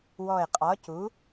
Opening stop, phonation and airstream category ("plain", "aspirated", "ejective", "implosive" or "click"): ejective